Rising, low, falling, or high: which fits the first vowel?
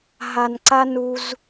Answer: low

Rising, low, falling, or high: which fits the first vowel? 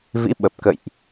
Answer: rising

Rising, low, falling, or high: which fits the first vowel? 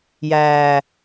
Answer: low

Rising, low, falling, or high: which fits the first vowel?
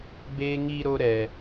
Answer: high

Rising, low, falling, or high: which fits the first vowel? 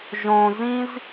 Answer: low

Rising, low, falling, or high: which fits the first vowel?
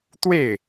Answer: falling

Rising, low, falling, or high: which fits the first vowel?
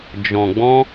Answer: low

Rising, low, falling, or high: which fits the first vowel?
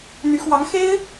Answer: rising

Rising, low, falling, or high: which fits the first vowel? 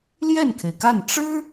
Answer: falling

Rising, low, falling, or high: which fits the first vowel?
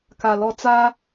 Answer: low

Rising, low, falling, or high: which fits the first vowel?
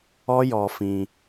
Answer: high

